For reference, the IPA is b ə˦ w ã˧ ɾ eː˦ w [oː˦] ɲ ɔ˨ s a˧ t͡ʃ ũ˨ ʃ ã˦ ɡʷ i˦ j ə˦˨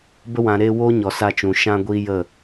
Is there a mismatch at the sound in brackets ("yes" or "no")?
no